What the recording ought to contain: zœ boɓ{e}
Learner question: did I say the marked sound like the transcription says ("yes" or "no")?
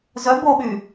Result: no